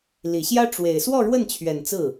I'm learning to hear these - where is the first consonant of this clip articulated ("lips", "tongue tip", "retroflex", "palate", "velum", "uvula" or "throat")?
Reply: tongue tip